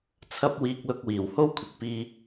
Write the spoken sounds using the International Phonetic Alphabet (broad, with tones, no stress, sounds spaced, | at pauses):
t͡sʰ ɐ˥ p̚ w iː˧ k̚ l ʊ˧ k̚ w iː˨˩ w h o˥ w kʷʰ ɪ˨ k̚ p iː˧